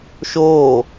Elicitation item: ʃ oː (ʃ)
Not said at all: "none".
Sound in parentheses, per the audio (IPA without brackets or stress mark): none